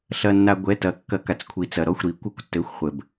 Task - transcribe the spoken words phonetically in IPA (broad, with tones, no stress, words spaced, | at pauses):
ɬɐ˩nːa˩ ɡʷɛ˩˧˩tɐ˨˩˦kːɐ˨˩˦ka˩t͡s kʷʰi˩t͡sɐ˩ɾɔ˩˧˩xʷ ɾi˨˩˦kʷɘ˨˩˦kʷtːɘ˩˧˩xʷ χʷɘ˩b